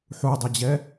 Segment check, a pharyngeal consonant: present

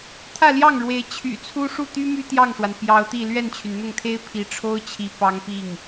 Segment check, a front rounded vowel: present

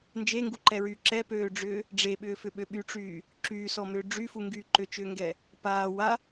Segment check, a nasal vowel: absent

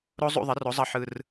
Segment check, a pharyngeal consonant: present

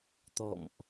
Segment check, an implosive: absent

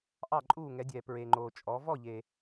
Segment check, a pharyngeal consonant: absent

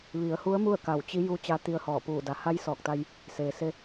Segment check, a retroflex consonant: absent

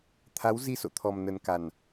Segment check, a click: absent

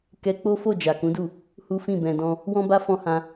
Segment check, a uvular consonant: absent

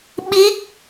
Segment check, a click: absent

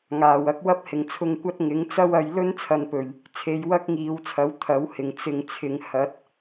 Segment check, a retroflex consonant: absent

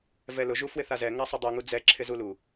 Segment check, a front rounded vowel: absent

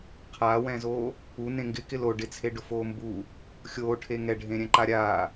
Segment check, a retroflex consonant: present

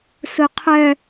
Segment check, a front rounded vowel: present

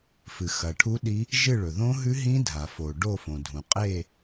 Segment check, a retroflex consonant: present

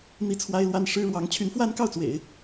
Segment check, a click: absent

